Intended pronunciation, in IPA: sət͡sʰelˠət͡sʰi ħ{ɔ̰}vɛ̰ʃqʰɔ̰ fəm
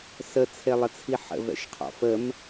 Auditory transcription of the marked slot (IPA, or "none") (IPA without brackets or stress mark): ə̰